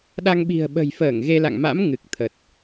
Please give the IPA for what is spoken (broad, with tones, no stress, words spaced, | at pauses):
ɗa˧ŋ ɓi̤˨˩ə̯ɓə̤˨˩jfəː˧˩ŋ ɣe˧la̰˧˨ŋma̰˧˥m ŋɨ˨˩k̚t̪ʰə˨˩t̚